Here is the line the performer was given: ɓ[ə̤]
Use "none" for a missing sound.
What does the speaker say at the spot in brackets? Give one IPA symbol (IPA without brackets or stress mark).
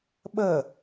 ə